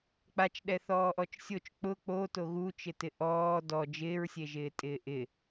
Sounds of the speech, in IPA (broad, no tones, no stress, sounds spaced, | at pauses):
k͡p a t͡ʃ ɗ ɛ θ ɔː ʔ ɔ t͡ʃ sʲ o t͡ʃ k͡p ʊ k͡p o t o ɣ u t͡ʃ ɪ t ɪ ʔ ɔː d ɔ d͡ʒ ɪː ɹ sʲ e ʒ ɪː tʼ ɪː ʔ ɪ